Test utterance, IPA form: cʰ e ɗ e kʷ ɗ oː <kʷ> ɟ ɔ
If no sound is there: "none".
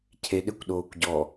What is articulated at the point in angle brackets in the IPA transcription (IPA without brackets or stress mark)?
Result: kʷ